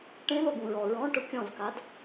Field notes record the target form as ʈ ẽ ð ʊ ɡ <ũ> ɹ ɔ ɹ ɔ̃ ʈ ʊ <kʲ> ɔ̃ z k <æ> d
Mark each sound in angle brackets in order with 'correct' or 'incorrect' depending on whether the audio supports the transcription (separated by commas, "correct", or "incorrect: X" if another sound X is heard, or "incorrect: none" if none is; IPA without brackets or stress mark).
correct, correct, incorrect: a